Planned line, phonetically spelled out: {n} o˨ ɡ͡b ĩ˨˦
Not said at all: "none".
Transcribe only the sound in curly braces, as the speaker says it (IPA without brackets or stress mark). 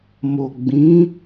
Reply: m